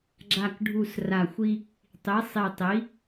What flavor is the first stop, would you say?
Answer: click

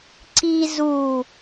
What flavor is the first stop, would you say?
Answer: click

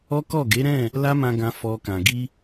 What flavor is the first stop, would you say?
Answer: plain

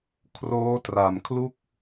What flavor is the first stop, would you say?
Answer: aspirated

